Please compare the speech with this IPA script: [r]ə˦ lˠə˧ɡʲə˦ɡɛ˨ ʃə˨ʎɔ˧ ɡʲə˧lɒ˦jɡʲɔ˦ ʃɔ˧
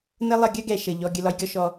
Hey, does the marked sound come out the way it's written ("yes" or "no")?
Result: no